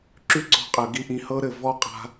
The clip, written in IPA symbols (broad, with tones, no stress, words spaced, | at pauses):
ǁy˦ǀɔ̤˧qʼɯ˨ ɡi˦ʔĩ˧ hɤ˦ɾɘ˦˨vɔ˦ qʼa̤˦